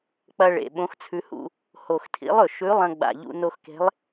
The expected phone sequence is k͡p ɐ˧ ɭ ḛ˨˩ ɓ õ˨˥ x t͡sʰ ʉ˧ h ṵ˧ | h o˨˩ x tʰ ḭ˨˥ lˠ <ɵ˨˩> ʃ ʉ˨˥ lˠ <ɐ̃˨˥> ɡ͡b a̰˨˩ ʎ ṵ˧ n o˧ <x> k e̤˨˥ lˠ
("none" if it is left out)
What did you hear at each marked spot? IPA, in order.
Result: ɵ˨˩, ɐ̃˧, x

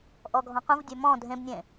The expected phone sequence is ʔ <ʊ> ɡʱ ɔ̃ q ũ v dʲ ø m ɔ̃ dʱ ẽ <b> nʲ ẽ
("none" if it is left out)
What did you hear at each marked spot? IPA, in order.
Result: ɔ, b

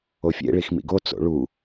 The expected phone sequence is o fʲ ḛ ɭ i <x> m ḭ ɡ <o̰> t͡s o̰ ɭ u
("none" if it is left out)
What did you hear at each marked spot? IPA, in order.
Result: x, o

